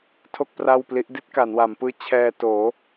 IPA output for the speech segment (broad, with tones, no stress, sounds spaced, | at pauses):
tʰ o˥˩ k̚ p r a˥˩ w p l i˦˥ ʔ d i˥˩ t̚ k a˩˦ n w a˩˦ m p ɯː˦˥ t͡ɕʰ ɛː˧ t oː˩˦